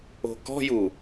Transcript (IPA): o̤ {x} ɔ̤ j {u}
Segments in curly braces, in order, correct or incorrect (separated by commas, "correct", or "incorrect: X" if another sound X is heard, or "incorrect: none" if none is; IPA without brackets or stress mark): incorrect: k, correct